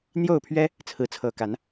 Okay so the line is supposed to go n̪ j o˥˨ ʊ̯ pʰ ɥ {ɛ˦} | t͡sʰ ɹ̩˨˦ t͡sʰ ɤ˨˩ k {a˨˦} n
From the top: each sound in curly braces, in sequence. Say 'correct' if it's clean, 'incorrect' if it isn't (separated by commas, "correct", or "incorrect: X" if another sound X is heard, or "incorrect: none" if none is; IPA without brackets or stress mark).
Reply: correct, correct